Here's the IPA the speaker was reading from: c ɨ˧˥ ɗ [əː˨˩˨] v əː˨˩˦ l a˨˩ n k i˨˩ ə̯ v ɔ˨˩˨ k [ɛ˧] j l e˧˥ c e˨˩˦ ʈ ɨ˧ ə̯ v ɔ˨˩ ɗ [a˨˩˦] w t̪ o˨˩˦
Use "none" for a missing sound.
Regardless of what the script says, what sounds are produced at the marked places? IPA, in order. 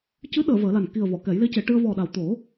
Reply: əː˨˩˨, ɛ˨˩˦, a˨˩

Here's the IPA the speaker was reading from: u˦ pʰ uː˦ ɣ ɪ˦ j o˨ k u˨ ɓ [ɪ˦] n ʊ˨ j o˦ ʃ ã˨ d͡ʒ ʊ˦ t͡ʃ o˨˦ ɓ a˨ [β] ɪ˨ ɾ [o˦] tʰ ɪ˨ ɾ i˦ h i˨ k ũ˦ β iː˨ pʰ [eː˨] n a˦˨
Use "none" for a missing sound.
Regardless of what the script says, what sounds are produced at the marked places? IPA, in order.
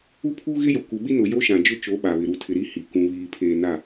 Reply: i˦, β, u˦, eː˨

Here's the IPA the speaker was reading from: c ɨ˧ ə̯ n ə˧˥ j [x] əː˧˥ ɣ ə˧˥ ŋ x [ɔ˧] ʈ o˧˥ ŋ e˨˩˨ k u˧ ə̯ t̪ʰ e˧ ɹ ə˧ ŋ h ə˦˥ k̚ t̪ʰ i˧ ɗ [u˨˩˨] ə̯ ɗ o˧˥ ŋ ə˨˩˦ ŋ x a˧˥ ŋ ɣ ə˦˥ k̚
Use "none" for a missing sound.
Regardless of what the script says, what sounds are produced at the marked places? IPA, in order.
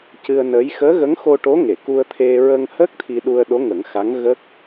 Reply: x, o˧, u˧

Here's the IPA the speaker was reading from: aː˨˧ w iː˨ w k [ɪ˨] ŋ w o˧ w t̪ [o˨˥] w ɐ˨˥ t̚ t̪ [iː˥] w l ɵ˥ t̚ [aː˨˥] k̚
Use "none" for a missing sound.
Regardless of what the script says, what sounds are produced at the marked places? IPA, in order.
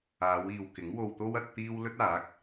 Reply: ɪ˨˥, o˥, iː˥, aː˨˥

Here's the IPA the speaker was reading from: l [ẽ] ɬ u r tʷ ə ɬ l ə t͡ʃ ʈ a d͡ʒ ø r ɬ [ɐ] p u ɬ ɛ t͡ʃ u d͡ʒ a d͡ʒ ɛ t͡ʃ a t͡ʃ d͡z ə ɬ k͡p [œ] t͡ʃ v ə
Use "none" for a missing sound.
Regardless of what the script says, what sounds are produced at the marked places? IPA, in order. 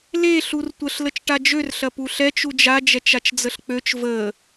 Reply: e, ɐ, ø

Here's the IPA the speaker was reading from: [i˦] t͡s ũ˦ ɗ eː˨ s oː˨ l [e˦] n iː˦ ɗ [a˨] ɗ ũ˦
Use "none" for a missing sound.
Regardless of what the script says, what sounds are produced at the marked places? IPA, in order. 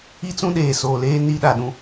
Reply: i˦, eː˦, a˨

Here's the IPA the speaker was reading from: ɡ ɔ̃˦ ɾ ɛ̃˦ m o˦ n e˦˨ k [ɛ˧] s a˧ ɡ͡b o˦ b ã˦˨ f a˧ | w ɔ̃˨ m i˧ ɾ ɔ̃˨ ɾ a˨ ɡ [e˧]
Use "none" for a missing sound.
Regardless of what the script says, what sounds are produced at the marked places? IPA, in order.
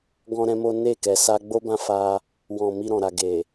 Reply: ɛ˨, e˨

